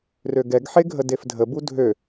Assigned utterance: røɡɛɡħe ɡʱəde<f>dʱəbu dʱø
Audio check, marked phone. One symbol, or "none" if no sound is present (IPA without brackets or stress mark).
f